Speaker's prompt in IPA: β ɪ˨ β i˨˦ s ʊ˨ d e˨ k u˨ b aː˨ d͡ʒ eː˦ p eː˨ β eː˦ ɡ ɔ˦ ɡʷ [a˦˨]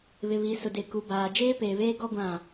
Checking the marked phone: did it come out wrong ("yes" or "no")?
yes